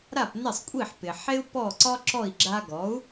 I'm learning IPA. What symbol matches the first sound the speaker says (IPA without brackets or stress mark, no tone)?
ɾ